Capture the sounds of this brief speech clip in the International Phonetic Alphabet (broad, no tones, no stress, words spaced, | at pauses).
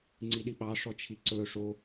ŋ͡ǀiɗiɓɑ ʂɔt͡ʃʰiǀɵ ʂo